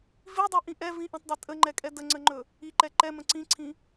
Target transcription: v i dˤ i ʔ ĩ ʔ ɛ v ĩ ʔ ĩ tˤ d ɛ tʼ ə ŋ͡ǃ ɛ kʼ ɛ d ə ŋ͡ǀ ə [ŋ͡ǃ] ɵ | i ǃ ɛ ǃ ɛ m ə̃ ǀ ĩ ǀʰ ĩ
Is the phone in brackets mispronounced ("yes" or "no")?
no